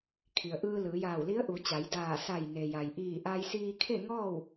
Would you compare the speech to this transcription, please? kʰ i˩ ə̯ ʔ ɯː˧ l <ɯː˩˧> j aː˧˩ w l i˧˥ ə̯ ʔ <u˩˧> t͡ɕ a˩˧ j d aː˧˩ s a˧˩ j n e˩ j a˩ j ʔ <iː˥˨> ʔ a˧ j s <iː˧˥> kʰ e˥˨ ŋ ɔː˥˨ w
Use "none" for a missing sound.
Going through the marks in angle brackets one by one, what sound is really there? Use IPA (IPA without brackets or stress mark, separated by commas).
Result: ɯː˩˧, u˩˧, iː˧˩, iː˧